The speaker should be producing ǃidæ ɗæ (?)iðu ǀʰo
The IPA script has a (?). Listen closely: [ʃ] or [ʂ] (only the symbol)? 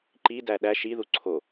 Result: ʃ